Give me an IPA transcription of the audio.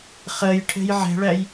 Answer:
χ ɜ j ʈʰ ɛ̤ j ʕ ɛ̤ ɭ æ j

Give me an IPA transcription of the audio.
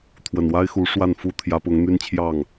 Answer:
t̪ʰ w ə˨˩ n w a˥ ɪ̯ x u˧˥ ʂ w a˥˩ n f u˥ t̪ʰ j ä˧˥ p ʊ˧˥ ŋ n̪ y˥ n t͡ɕʰ j ɑ˥˩ ŋ

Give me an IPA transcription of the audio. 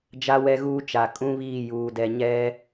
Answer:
d͡ʒ a˦ w ɛ˦ ɣ uː˦ t͡ʃ a˨ kʼ ũ˦ β iː˦˨ j uː˨ d ɛ˨ ɲ ɛ˦

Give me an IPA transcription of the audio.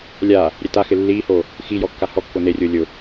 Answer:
lʲ a | ɾʲ e t a x ɪ lː iː h o | x i j ɔ kː a h ɔ kː o n e rʲ ʊː lʲ ʊ

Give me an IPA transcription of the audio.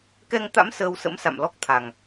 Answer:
k ɛ˧ ŋ t̪ a̰˧˥ m s əː˧ w s ə̰˧˥ m s a̰˧˨ m l ɔ˦˥ k̚ t̪ʰ a˨˩ ŋ

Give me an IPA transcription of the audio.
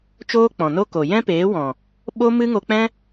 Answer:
t͡ʃ oː˦ k͡p ɔ̃˨ n o˦ k o˨ j ɛ̃˦ p eː˨˦ w ɔ̃˨ | ɓ o˦ m ɨ˦ ŋ o˧ k͡p ɛ̃˦

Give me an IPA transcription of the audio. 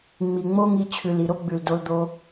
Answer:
ŋ͡m i˨ ŋ͡m o˦ ŋ i˧ t͡ɕʰ ʉ˨ l i˨ ɾ o˦ ɡ͡b ʉ˨ l d o˧ l d̪ o˧

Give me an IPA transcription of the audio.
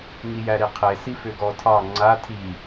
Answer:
ŋ i j æ ɾ i qʰ e s i f ʏ ɡ ɔ tʰ ɑ ŋ͡ǀ a tʰ i

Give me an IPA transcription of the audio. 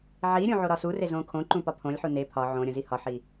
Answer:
ʕ i ɾʲ ũ ʕ o ɾ ɒ s u r e z õ kʰ õ ǃ ũ p ɒ pʰ õ lʲ ħ u n e pʰ ɒ ʕ õ ɾʲ õ z i h ɒ ħ i

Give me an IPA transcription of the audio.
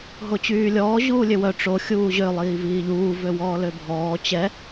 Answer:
ɦ o t͡ɕ yː lʲ ɔː ʑ uː lʲ ø w œ ʈ͡ʂ o xʲ uː ʑ ø lˠ iː v iː ʎ uː v ø w ɔː l ø bʱ ɔː t͡ɕ ɛ

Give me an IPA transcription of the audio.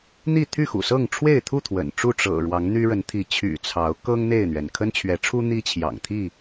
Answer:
n̪ i˥˨ t̪ʰ y˥˨ x ṵ˨˩ s ɤ˥˨ ŋ ʈ͡ʂʰ w e˥˨ ɪ̯ t̪ʰ u˥˨ t̪ʰ w ə̰˨˩ n ʈ͡ʂ u˥˨ ʈ͡ʂ ɤ̰˨˩ ɻ w ɑ˨˦ ŋ n̪ y˦ ɻ ə˨˦ n t̪ʰ i˨˦ t͡ɕʰ y̰˨˩ t͡sʰ ɑ˨˦ ʊ̯ k ɤ˦ ŋ n̪ e˥˨ ɪ̯ n̪ ɥ ɛ˩ n kʰ ə˦ n t͡ɕʰ ɥ ɛ˨˦ ʈ͡ʂʰ u˦ n̪ i˦ t͡ɕʰ j ɑ̰˨˩ ŋ t̪ʰ i˥˨

